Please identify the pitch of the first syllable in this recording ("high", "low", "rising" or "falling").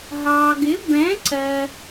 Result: low